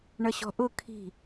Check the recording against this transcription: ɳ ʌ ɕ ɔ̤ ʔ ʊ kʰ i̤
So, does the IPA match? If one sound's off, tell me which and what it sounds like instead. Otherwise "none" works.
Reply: none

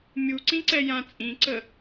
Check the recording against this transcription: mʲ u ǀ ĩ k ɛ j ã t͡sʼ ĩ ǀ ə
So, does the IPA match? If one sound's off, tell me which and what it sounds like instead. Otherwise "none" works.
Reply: k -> ǀ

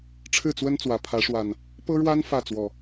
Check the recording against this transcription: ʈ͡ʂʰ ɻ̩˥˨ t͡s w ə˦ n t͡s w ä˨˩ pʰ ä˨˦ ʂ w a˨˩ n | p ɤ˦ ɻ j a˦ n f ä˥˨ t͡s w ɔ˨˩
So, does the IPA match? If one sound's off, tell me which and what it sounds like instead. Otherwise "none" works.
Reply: j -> w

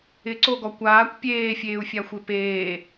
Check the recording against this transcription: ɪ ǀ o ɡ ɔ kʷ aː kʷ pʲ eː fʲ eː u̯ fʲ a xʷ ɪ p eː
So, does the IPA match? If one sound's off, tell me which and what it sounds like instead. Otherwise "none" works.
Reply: none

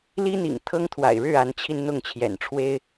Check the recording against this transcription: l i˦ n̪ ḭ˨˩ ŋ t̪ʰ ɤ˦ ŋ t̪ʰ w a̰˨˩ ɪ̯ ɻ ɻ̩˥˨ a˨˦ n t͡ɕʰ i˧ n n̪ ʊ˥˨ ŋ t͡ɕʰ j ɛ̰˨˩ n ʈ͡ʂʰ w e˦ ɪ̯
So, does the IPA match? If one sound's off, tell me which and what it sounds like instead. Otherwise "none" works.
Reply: none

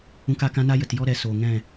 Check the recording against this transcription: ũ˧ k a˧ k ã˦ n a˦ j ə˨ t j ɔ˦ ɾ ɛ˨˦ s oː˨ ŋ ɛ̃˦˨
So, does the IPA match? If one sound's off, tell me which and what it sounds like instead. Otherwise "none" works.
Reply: none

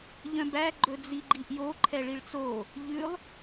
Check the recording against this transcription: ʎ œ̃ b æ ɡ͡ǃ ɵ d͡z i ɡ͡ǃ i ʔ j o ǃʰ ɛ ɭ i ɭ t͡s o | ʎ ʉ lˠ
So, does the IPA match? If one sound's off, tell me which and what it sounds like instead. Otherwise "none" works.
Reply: none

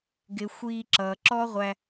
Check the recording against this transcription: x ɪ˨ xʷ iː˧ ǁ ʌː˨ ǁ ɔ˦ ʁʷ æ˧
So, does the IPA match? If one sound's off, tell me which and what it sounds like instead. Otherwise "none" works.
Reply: x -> ɡ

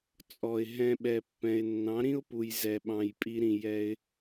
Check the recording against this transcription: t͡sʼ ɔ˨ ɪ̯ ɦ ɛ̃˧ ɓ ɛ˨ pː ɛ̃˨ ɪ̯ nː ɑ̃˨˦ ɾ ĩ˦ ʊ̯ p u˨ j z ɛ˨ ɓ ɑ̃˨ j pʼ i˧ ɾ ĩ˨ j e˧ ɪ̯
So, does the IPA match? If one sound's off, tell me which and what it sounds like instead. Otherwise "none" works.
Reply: e˧ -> ɛ˧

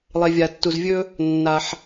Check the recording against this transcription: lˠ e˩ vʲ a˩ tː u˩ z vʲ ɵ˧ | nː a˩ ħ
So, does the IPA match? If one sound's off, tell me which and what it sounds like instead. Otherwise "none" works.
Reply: none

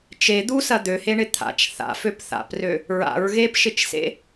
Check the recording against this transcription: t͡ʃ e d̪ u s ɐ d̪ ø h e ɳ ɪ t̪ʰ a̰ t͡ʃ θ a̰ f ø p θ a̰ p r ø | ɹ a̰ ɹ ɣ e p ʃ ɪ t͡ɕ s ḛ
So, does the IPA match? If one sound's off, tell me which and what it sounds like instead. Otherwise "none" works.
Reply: t͡ɕ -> t͡ʃ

